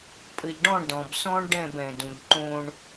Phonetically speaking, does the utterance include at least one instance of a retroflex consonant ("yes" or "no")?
yes